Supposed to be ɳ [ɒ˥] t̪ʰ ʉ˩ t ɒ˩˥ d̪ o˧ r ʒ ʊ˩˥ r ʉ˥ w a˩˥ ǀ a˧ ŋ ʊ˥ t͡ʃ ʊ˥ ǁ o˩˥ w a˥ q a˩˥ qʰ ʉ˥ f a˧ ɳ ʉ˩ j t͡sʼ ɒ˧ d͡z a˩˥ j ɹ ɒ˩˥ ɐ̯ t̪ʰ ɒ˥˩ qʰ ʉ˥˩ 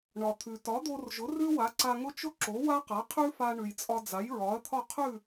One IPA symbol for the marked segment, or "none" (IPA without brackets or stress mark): ɒ˩